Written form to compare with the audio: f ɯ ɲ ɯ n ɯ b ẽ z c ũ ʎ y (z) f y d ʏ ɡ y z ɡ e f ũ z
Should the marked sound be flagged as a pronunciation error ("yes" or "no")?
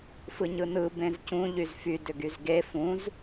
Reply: no